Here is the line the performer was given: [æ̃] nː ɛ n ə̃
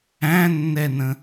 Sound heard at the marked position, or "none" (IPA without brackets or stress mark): æ̃